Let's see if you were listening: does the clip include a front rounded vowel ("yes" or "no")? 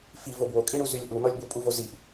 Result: yes